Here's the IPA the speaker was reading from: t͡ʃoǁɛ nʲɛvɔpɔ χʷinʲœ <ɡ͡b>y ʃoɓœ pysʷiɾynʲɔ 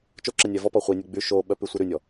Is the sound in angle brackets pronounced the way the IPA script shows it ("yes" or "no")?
yes